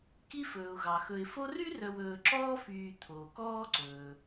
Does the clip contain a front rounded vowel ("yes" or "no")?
yes